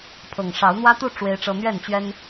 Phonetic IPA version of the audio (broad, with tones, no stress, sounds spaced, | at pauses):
pʰ ɤ˨˩ ŋ ʂ ɑ˨˦ ʊ̯ n̪ w ä˦ t̪ u˥˨ ʈ͡ʂ w e˦ ɪ̯ ʈ͡ʂ ɤ˦ n̪ ɥ ɛ˥˨ n t͡ɕ ɥ ɛ˦ n